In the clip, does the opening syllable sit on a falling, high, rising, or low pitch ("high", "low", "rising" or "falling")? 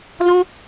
high